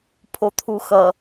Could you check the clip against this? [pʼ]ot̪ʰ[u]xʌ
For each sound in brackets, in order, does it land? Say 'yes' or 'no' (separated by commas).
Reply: no, yes